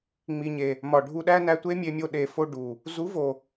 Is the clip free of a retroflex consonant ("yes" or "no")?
no